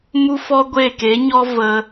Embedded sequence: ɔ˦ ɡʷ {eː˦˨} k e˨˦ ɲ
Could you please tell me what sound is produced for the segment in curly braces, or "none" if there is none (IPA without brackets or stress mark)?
eː˦˨